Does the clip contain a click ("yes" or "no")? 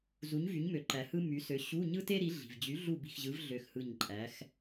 yes